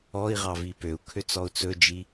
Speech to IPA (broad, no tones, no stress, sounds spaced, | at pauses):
ɔ i̯ ʁ ɑ v i p ø u̯ kʰ ø t͡s ɔ u̯ t͡s ɵ d͡ʒ i